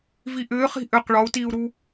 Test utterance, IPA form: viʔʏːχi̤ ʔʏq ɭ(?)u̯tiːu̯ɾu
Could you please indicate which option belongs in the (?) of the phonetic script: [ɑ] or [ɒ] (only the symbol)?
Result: ɒ